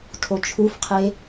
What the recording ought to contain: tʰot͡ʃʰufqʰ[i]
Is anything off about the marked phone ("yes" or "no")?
yes